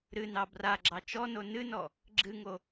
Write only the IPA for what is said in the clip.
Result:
ɾ ɨ n ɑ b r a ɡ͡ǁ ɑ t͡ʃ ɔ n o n ɨ n ɔ | ɡ͡ǁ ɨ ŋ o

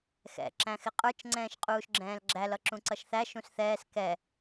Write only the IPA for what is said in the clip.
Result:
x ɛ̰ ǁ æ̃ x ɪ qʼ ə˞ t͡ʃ ŋ͡ǀ ɛ̃ː ʃ qʼ uː ʃ ɡ͡ǁ ɛ̃ː l ɡ͡ǁ æ l ʌ ǁ ũ ǀ ʌ ʃ θ æ ʃ ũ s θ ɛː s k ɛ

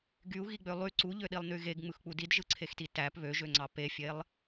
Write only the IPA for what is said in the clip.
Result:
ɡ y u̯ ɣ i ɡ͡b ø lˠ y ǀ u ʎ ø ɗ i lˠ n y ɣ e ɡ ŋ͡m ɯ x k͡p u d i d ʒ ɯ ǀʰ e x t i t æ p β ø ʒ ø ŋ͡ǀ ɑ p e fʲ e lˠ

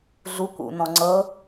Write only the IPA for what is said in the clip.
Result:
ɮ u kʷ ṵ n ɔ̃ ŋ͡ǀ ɤ

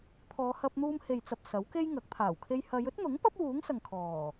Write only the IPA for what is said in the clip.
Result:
t̪ʰ ɔː˨˧ h ɐ˧ p̚ n̪ uː˧ m h e˨ j t͡s ɐ˨ p̚ s ɐ˨˥ w k e˥ j ŋ ɐ˨˥ k̚ t̪ʰ aː˨˩ w kʰ e˧ j h ɐ˨˧ j ɵ˥ t̚ n̪ ʊ˨˥ ŋ p ɐ˥ p̚ w uː˨˥ ŋ s ɐ˨ ŋ kʰ ɔː˨˩

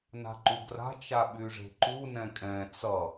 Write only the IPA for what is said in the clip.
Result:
n a̤ ǃ u ɡ r a̤ t͡ʃ a ɓ y ʐ e̤ ǃ u n ɛ̃ kʼ ɛ̃ t͡s ʌ

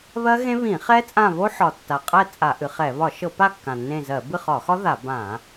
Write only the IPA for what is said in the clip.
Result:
β ɜ˦˥ ɣ ẽ˦˥ β ĩ˧˩˧ χ ɛ˦˥ t͡sʼ ã˦˨ β o˦˥ ħ ɒ˨˩ tː a˨˩ qʼ ɛ˦˨ t͡sʼ a˧˩˧ ʔ ɨ˩˧ χ ɛ˧˩˧ β ɒ˧˩˧ ʃ ɤ˧˩˧ p a˦˨ kː ã˨˩ nː ẽ˦˨ z ɜ˧˩˧ b ɨ˦˨ χ ɒ˧˩˧ x ɒ˦˥ ð a˧˩˧ b ã˧˩˧

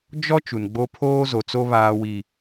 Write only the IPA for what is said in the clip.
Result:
d͡ʒ ɔ˦ t͡ʃ u˨ n ɡ͡b o˦ pʰ oː˦ z o˨ t͡s o˦ β aː˨ w i˨

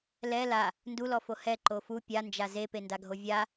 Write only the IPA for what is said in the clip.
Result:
l ɛ l a | n d u l ɔ f o h ɛ ǃ o f u pʲ a n d͡ʒ a z e p e n d a ɡʱ o vʲ a

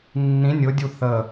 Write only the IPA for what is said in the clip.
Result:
nː ĩ nʲ ʊ dʲ u θ ə

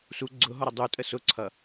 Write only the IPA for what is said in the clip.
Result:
s u ɡ͡ǀ ʊ ɦ ɔ ɾ ə dˤ u tʼ ə s ʊ ǀʰ ʌ

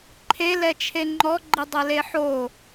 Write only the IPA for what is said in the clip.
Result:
ǃʰ e l ɛ t͡ʃʰ e ŋ͡ǃ ɔ ɡ͡ǃ i dˤ ɛ l e ħ o

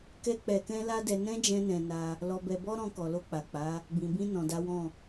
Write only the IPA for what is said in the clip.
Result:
k ɛ˦ k͡p ɛ˧ k ɛ̃˦ l a˦ d ɛ˧ n ɛ̃˦ d͡ʒ ɛ̃˧ n ɛ̃˨ n a˧ | l ɔ˧ b ɛ˧ b ɔ˦ ɾ ɔ̃˧ k ɔ˨ l o˧ k͡p a˨ k͡p a˨˦ | b ĩ˨ b ĩ˧ n ɔ̃˨ d a˨˦ w ɔ̃˦˨

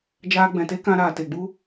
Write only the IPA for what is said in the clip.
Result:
d͡ʒ aː˧ ɡ͡b ɛ̃˨ t e˦ k ã˧ ɾ aː˨ t e˨ ɡ͡b u˦

